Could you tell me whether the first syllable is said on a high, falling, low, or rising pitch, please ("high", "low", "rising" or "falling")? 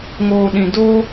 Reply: low